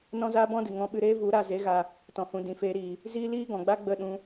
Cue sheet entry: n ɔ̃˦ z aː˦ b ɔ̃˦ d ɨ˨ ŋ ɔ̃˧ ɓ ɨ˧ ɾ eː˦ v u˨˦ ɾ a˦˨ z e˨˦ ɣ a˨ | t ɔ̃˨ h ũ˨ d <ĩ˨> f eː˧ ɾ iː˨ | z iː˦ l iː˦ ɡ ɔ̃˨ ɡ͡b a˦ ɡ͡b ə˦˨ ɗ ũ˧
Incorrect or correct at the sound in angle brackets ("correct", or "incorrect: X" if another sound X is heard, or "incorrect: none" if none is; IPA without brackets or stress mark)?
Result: correct